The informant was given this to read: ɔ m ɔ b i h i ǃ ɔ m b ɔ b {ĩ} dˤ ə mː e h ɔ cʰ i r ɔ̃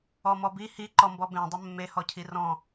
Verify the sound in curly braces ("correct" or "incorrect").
incorrect